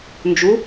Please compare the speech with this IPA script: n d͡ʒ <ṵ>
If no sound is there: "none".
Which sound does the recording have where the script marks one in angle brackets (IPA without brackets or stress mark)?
u